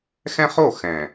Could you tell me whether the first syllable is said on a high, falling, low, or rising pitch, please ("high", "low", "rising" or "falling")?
high